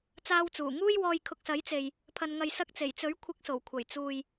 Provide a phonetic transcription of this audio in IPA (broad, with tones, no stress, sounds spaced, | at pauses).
t͡s aː˧ w t͡s uː˨˩ ŋ uː˥ j w ɔː˧ j kʰ ʊ˨ k̚ s ɐ˨˥ j t͡s e˨ j | pʰ ɐ˨ n ŋ ɐ˨ j s ɐ˧ k̚ t͡s e˨˩ j t͡s ɵ˨˥ ɥ kʷʰ ɪ˨˥ k̚ s o˨˩ w kʷʰ ɐ˨˩ j t͡s uː˨ j